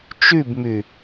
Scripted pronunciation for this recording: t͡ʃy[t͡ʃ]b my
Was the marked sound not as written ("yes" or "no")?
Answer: yes